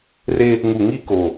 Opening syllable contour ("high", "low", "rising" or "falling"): high